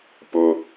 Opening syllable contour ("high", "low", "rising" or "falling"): low